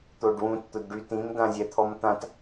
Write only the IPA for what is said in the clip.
t̪ o ɖ w ũ t t̪ ʊ d ɖ y t ĩ m d ã zʲ ɛ t̪ʰ ɔ m t̪ ã t

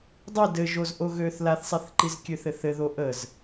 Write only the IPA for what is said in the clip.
dˤ i d ɘ ʒ o z ʔ o ɣ ø θ l a θ sˤ i θ ǃ i z kʲ ø θ ɘ θ ɘ ð o ʔ ə z

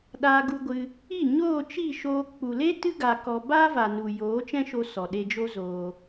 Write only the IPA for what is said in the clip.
ɗ aː˧ ɡ u˧ ɡʷ ɨ˧ | i˦˨ ɲ oː˦˨ t͡ʃ i˦˨ ʃ oː˧ k͡p u˨ l e˦ t ɨ˦ ɡ a˨ k ɔ˧ b aː˦ v a˨ n u˨ j oː˨˦ t͡ʃ ɛ̃˦ ʃ o˧ s ɔ˨ ɗ e˧ d͡ʒ o˦ z oː˧

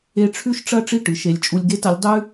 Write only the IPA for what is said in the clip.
e˧ ʈ͡ʂʰ ʉ˥ ʃ ʈ͡ʂ ɐ˥ ʈ͡ʂ i˥˩ ʈ ɨ˩˧ ʃ e˩˧ lʲ t͡ʃʼ u˧ lʲ ɡ e˥ t ɐ˨˥ lʲ dˤ ʉ˥

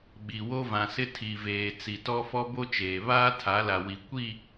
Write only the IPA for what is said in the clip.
ɓ i˨ w o˦ v ã˨ s ɪ˦ tʰ i˨ v eː˨ t͡s i˨ t ɔ˦ f ɔ˦ b o˦ t͡ʃ eː˨ β aː˦ tʰ a˨˦ l a˨ w i˨ kʷ i˦˨

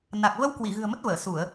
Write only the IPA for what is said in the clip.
n a˨˩ k̚ v ə˧ w k w i˧˩ ɣ ɨ̤˨˩ ə̯ m ə˦˥ t̚ v əː˧˩ s u˧˩˨ ə̯

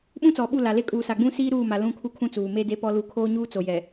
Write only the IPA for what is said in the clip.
ɓ ũ˦ t͡s ɔ˨ ɓ u˦˨ l a˨ l e˦ kʼ uː˨ s a˨ ɡ͡b ũ˦ s iː˦ ɾ uː˦˨ m a˨ l ũ˦˨ kʰ u˦ kʰ ũ˦ t͡s uː˨ m e˦ d e˦ p ɔ˦ l u˦˨ kʰ oː˦ ɲ uː˦ t͡s o˨ j ɛ˨

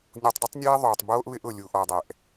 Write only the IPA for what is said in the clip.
nʲ u˨ tˤ dˤ ɪ˦ tˤ nʲ eː˦ ðˤ oː˨ tˤ b oː˦ ʔ β ɪ˦ ʔ ʊ˨ lʲ u˨ ʔ ɔ˨ dˤ ɛ˨ ʔ

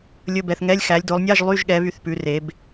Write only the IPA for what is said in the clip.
lʲ ɵ˧˥˧ b ɛ˨˦ θ ŋ ɛ˧˥˧ lʲ x æ˨˦ lʲ d o˨˦ lˠ nʲ ɑ˧˥˧ ʒ lˠ y˧˥˧ ʒ ɠ ɛ˨˦ β y˨˦ θ p ʉ˨˦ r e˨˦ b

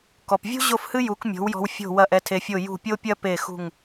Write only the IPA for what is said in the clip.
k ɔ˩ p vʲ ṳ˥ ʑ o˥˩ f h ɨ˥ j u˩˥ k mʲ o̤˩˥ w j ɔ̤˧ w fʲ o̤˥˩ w ɐ˥˩ ʔ ɛ˧ tʰ e˧ fʲ o˥˩ j ṳ˥˩ pʲ o˥ pʲ ɐ˥ p e˥˩ x ṳ˥˩ ŋ

